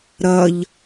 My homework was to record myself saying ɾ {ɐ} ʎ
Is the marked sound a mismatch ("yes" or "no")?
no